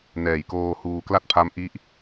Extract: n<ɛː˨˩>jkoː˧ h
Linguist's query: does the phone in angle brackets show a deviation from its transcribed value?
no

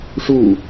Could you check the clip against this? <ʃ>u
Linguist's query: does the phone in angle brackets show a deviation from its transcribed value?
yes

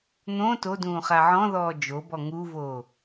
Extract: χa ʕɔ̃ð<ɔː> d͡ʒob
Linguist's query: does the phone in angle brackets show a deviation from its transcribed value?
no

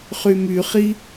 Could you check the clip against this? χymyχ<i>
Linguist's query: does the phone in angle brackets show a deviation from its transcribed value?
no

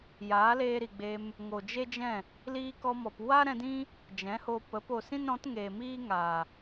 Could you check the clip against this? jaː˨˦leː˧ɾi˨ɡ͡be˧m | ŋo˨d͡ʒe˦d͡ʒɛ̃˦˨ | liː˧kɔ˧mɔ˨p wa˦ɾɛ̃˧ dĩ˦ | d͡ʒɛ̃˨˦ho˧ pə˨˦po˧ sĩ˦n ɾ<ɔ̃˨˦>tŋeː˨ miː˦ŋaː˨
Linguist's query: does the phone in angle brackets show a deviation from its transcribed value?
no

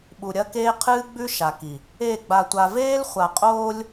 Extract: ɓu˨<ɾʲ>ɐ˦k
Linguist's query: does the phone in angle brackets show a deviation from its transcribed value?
no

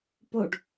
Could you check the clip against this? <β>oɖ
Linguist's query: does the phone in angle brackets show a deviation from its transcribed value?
yes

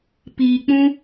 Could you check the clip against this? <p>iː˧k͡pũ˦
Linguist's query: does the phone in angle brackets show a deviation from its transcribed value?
no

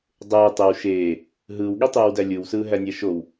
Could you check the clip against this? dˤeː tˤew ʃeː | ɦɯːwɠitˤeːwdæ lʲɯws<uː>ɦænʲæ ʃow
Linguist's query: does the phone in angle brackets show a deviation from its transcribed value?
yes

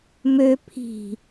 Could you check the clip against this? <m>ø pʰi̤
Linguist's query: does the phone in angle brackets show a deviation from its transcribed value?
no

